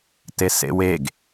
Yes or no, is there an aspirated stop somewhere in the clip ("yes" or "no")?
no